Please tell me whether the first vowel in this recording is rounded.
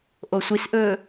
yes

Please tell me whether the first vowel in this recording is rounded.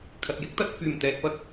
no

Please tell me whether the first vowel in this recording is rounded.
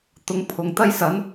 yes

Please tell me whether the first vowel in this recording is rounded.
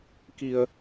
no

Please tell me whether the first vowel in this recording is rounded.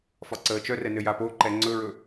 yes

